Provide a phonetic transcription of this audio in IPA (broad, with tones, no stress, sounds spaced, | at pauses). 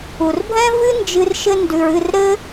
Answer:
u˨ r bʱ ɛ̃˦ v ɨ˦ n d͡ʒ ɨ˧ r ʃ ɘ˧ n d ʉ˨ ɹ ɨ˦˨ r ɾ ɘ˦